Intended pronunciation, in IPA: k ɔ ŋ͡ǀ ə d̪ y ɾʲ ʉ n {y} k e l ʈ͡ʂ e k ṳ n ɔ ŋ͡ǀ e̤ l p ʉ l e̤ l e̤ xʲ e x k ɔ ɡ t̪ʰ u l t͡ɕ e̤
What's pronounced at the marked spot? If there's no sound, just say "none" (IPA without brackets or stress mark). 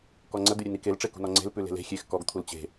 i